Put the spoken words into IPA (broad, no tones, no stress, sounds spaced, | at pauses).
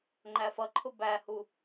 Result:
ŋ͡ǃ æ f ʌ ǃʰ ʊ b æ h u